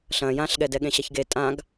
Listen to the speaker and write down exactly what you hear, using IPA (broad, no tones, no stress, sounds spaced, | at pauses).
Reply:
ɬ ɐ̃ j ã ɬ ɠ ɛ d ɛ ɠ ẽ ɕ ɐ ç ɡ e tʼ ã ɡ